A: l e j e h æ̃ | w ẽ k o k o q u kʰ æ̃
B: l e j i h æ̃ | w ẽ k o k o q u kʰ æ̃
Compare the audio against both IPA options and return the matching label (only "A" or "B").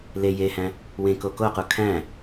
A